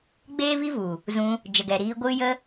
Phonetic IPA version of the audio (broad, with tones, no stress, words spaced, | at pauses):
ɡ͡beː˦vi˦vu˨ | zũ˧ | d͡ʒə˨ɡɛ˨ ɾiː˧ɡʷɨ˦ jə˦